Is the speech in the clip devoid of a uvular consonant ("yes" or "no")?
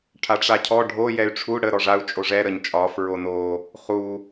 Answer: no